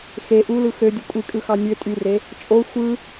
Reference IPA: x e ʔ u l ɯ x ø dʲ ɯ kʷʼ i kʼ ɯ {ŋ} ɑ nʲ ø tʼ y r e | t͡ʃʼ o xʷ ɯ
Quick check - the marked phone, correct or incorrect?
incorrect